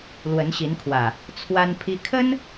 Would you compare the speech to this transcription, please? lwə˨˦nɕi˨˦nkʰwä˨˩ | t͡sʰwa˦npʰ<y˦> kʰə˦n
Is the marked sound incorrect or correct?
incorrect